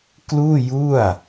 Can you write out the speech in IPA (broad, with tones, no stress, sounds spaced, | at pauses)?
k l uː˥˩ j u˥˩ a̯